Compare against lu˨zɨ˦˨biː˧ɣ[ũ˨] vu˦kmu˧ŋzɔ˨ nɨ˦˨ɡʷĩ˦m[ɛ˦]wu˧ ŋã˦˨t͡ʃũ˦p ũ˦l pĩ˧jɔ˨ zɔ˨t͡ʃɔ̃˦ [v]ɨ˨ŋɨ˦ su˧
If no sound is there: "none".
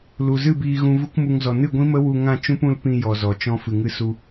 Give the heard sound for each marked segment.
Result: ũ˧, ə˦, f

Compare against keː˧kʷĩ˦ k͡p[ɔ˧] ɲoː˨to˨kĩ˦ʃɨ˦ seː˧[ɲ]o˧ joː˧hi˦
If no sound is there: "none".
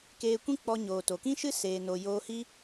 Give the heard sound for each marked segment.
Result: ɔ˧, n

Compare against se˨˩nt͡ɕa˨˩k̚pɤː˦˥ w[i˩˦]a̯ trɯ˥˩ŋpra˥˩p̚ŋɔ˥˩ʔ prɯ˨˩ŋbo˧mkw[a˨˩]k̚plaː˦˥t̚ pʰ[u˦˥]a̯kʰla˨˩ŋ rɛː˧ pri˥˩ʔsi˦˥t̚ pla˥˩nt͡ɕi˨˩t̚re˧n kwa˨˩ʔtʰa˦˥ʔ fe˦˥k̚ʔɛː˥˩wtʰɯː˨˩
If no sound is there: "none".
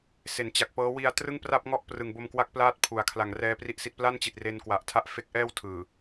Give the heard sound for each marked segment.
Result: i˧, a˦˥, u˩˦

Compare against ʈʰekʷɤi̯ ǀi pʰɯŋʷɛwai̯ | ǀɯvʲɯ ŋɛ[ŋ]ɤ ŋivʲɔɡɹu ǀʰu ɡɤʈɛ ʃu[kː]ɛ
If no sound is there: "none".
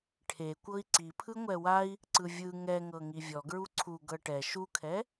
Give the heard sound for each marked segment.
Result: ŋ, kʰ

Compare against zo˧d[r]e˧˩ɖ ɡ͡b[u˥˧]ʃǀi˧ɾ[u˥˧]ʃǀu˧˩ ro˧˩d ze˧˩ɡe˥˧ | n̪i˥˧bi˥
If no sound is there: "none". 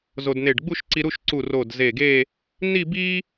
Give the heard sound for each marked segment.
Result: n̪, u˥˧, u˥˧

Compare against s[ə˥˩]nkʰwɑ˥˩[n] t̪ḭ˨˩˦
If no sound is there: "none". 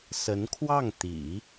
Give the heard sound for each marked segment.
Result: ə˧˥, ŋ

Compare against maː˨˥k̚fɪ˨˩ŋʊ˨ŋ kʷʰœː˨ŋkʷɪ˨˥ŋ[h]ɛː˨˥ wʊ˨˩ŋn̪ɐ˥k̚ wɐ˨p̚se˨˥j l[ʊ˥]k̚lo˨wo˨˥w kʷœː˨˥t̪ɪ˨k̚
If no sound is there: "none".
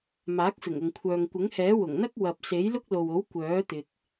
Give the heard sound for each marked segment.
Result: h, ʊ˥

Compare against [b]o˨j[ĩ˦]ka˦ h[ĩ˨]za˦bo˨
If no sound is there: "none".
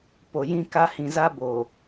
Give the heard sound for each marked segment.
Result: p, ĩ˦, ĩ˨

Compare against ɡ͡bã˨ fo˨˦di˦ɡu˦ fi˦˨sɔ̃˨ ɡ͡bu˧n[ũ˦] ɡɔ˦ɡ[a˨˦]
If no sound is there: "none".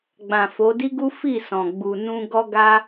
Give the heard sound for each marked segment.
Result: ũ˦, a˦

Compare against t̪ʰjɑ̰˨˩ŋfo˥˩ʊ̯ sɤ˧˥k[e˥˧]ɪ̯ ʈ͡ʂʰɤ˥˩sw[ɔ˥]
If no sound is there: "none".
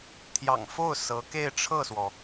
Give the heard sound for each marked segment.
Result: e˥˧, ɔ˩

